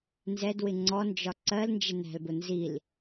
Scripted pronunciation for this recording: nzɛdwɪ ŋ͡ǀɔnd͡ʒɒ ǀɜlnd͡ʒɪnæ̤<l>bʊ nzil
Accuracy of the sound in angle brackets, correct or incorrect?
correct